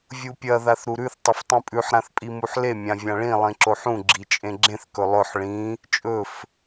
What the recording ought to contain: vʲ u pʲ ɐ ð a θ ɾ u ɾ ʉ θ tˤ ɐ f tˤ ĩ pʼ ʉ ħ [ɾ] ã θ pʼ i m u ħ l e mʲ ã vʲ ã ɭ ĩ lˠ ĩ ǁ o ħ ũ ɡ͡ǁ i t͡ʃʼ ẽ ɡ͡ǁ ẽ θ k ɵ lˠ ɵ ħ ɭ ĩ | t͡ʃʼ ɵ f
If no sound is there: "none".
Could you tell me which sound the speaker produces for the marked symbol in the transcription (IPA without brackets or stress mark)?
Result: ɾ